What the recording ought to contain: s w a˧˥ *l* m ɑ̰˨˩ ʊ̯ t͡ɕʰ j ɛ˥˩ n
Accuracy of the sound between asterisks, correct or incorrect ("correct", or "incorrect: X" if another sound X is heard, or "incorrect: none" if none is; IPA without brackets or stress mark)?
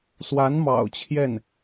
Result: incorrect: n